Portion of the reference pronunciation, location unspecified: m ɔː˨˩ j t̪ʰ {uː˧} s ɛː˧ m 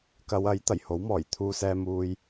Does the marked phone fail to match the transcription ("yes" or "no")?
no